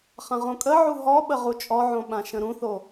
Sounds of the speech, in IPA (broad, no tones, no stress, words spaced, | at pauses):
χãʁõkʼə ʕuɦɔɓə ʁut͡ʃʼɔʕõɓã ʃə̃ɾũθo